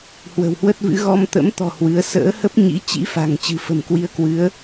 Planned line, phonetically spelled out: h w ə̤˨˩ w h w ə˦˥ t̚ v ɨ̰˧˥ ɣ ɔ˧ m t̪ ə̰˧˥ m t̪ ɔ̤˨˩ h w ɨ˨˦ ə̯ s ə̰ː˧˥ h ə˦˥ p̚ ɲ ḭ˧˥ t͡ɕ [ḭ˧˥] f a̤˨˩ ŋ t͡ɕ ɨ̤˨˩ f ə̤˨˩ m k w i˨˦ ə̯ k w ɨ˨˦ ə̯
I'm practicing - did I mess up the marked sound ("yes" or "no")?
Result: no